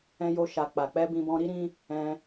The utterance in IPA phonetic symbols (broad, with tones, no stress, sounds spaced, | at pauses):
ɛ̃˧ j o˧ ʃ a˧ k͡p a˨ k͡p ɛ˧ b ĩ˧ b ɔ̃˧ ɾ i˦ ɾ ĩ˦ | ɛ̃˧